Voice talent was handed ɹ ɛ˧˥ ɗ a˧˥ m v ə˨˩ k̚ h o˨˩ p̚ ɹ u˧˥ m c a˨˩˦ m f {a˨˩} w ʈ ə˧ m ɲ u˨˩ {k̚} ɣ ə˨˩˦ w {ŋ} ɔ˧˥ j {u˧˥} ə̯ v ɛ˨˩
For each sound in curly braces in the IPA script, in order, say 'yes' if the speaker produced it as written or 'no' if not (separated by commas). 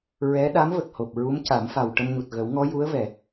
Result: yes, no, yes, yes